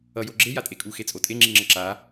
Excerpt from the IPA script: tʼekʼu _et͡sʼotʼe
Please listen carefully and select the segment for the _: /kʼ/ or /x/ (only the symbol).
x